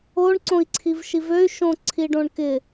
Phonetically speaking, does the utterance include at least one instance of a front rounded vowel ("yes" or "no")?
yes